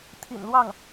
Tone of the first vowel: low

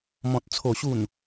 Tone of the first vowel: low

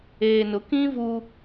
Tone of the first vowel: low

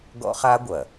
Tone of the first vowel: high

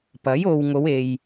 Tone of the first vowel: rising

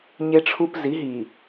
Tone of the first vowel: high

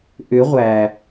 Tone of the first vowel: rising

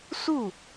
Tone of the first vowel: falling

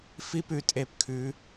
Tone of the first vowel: high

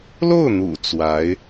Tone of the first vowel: falling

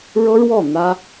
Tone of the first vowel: high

